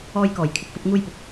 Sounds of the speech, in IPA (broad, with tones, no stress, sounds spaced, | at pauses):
ɔː˧ j k ɔː˨˩ j kʰ ɪ˨ k̚ f ɐ˧ p̚ ŋ uː˧ j p ʊ˨ k̚